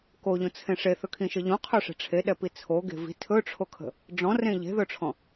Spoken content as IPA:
k o ʎ õ t͡sʰ ẽ ʂ e θ ɵ kʰ ĩ ʃ ə ʎ õ qʰ ɵ ʂ e̤ ʈ͡ʂʰ e ɗ ɛ p i t͡sʰ o ɡ e̤ v i̤ tʰ ɵ ʈ͡ʂʰ o kʰ ə̤ | ɖ͡ʐ ɔ̃ r ẽ ʎ e̤ ð ɵ ʈ͡ʂʰ ɔ̃

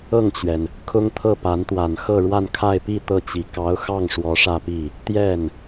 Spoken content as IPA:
ɤ˥˩ ŋ t͡ɕ ɥ ɛ˩ n | kʰ ʊ˥ ŋ t̪ʰ ɤ˥˩ p a˧˥ n t̪ w a˨˩ n x ɤ˥˧ ɻ w a˥˧ n kʰ a˥˧ ɪ̯ p i˥˧ t̪ ɤ˥˩ t͡ɕ i˨˩ k ɑ˧˥ ʊ̯ x ɑ˥˩ ŋ ʂ w ɔ˧˥ ʂ ä˥˧ p i˥˩ | t̪ j ɛ˥˩ n

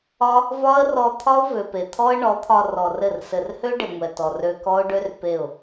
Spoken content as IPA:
ɒ˦ | v ɒ˦ ə̯ r ɔ˧ t̪ʰ ɒ˦ ʊ̯ v ø˨ p e˨ t̪ʰ ɔ˦ ə̯ ɳ ɔ˨˦ t̪ʰ ɒ˧ r ɔ˨ r ɘ˦˨ r s ɘ˨ r h ø˦ ɖ e˨ ŋʷ ɛ˨ t ɔ˨ r ø˧ k ɔ˦ ʊ̯ ɖ ø˦ r p e˦˨ ʊ̯

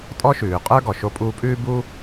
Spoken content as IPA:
tʼ ɔ˧ ʃ ʉː˩ qʼ ə˞˧ ɡ ɔ˩ ʃ o˧ pʼ uː˧ pʼ ʉː˥ b u˥

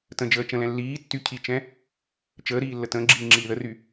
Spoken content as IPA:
t ə̃ d͡ʒ əː t͡ʃ ə̃ l ɛ̃ lː iː tː y cʰ i t͡ʃ ɛ̃ | t͡ʃ əː ɾ iː lː ə t ə̃ː ɡ͡ǁ iː ŋ͡ǁ iː ð ə r y

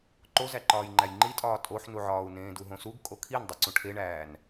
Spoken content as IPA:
ǃ o z æ ǃ ɒː j ŋ͡ǃ æ j ŋ͡ǃ i tʼ ɒː tʼ o ħ n u ʕ ɒː u̯ n ẽː d u ɦ õ s u ɡ kʼ o kʰ i n dˤ i ǀ ũ ʈʰ e ɳ æː n

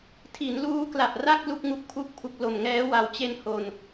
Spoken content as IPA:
tʰ i˩˦ n l uː˦˥ k l a˨˩ ʔ r a˥˩ k̚ l u˥˩ k̚ ŋ u˨˩ k̚ pʰ u˥˩ k̚ pʰ u˨˩ k̚ l o˨˩ m ŋ ɛː˦˥ w a˨˩ w t͡ɕ e˧ n h o˨˩ n

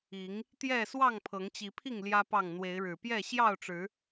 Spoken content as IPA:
i˨˦ ŋ | t̪ j ɛ˥˨ s w ɑ˥˨ ŋ pʰ ɤ˨˦ ŋ t͡ɕ i˨˦ pʰ i˥˨ ŋ l j ä˦ p ɑ˥˨ ŋ n̪ w e˨˦ ɪ̯ ɻ ɻ̩˨˩ p j ɛ˥˨ ɕ j ɑ˥˨ ʊ̯ ʈ͡ʂ ɻ̩˨˦

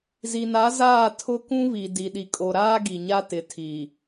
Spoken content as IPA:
z i˨ n a˨˦ z aː˦˨ tʰ ʊ˦ k ũ˦ β i˨ d i˨ ɗ i˨ kʼ o˨ ɾ aː˦ ɡ i˨ ɲ a˦ t ɪ˨˦ tʰ i˨

